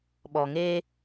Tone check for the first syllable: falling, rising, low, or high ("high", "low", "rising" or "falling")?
low